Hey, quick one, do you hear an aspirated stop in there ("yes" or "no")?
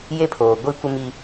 yes